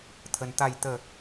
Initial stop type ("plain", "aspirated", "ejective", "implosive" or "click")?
aspirated